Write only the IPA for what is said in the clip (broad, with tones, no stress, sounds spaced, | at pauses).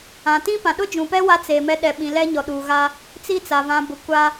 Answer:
ã˨ t ĩ˦ p ã˨ ɗ ʊ˦ d͡ʒ ũ˨ p ɛ˦ w a˦ t͡s eː˨ m ɛ˦ ɗ ɛ˨ ɓ ĩ˨ l ɛ˦ ɲ ɔ˨ ɗ uː˨ ɣ a˦ | t͡s i˦ t͡s a˨ v ã˨ b ʊ˨ kʷ a˦